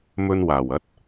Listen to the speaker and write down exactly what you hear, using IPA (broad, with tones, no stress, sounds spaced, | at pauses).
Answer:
m ɵ˧ n w aː˨˩ w ɐ˨˥ t̚